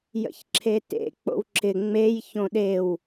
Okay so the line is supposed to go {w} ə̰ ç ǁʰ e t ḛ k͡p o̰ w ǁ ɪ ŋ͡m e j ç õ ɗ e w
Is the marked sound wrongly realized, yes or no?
yes